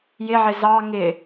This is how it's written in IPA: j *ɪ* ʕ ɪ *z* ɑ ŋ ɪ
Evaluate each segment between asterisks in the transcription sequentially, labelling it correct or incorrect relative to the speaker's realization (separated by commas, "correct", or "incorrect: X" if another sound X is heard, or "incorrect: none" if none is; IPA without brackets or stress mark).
correct, correct